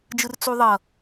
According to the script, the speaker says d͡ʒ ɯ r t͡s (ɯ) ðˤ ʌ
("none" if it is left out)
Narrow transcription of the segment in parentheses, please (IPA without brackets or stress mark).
u